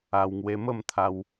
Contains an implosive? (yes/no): no